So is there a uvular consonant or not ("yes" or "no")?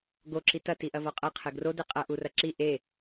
yes